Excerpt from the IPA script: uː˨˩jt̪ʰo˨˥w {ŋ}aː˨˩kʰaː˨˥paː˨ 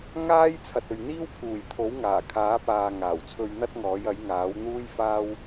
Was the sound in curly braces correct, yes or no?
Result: yes